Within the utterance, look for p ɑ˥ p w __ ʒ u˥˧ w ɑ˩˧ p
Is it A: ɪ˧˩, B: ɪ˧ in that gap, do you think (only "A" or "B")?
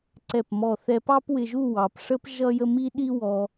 B